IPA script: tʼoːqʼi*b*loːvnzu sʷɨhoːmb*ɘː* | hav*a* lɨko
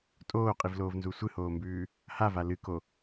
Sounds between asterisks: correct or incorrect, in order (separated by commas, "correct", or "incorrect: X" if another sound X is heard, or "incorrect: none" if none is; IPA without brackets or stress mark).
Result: incorrect: v, incorrect: ʉː, correct